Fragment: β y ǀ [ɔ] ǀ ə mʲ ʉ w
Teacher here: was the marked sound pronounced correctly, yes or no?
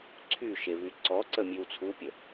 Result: yes